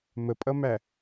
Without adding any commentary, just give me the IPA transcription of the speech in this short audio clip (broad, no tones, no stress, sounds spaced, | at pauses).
m ə pʼ ʌ m æ